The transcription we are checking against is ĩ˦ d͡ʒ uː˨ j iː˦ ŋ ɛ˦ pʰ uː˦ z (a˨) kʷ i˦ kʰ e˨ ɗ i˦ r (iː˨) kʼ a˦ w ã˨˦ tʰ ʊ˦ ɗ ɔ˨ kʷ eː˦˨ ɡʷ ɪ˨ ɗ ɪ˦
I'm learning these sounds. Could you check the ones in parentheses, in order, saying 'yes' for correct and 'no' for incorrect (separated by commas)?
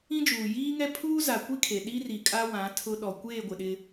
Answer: yes, no